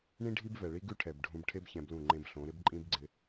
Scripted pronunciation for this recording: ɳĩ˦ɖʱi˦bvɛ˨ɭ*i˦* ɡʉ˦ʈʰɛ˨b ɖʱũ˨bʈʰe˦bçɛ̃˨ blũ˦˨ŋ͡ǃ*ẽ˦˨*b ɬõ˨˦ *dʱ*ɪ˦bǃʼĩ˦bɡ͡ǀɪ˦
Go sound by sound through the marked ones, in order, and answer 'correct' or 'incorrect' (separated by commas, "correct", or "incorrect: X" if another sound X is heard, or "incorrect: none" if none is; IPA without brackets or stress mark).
correct, incorrect: ẽ˦, incorrect: ɾ